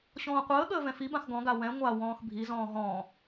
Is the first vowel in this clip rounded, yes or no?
yes